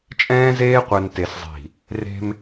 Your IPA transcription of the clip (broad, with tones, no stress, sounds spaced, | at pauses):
t͡ʃʼ ɛ̃ː˦ z eː˦ qʷ ɛ˨ n t e˨ s zˤ i̤˨ | r e̤˦ m